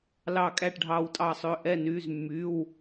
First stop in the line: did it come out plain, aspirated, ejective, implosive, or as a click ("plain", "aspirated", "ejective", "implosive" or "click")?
ejective